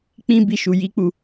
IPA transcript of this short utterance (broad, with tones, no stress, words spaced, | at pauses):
k͡pĩ˦ bi˦ʃu˧ji˦k͡pu˦˨